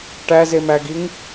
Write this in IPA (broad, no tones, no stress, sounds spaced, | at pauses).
ʈ æ z e m æ ɡ i ŋ